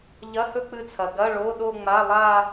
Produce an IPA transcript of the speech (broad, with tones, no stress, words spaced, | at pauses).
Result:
ʎɐ˧˥˧hɵ˥˧k͡pɨ˧t͡sʰɐ˩ ɡɐ˧˥˧ ɭo˧˥˧ɗo˥˧ŋ͡ma˧˥˧lˠa˥˧